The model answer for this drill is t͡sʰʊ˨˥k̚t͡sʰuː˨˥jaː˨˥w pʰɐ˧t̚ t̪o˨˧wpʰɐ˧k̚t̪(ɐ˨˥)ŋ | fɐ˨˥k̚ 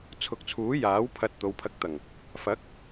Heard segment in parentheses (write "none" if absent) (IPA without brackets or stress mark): ɐ˨˩